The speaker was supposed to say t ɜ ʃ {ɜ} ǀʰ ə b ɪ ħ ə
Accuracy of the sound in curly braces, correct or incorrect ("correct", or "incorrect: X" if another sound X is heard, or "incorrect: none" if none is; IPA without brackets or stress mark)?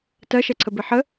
incorrect: ɛ